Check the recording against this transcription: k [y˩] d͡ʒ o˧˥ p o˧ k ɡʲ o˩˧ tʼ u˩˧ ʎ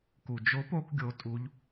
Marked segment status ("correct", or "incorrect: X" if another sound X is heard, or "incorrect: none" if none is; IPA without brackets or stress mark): incorrect: u˩